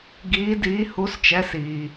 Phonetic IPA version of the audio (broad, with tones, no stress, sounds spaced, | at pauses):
ɡ iː˩˥ d iː˩˥ h u˩˥ s t͡ʃ ɛ˩˥ s iː˩